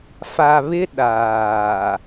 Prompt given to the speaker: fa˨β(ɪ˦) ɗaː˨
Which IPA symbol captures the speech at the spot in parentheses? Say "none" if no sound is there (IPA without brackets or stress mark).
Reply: ɪ˦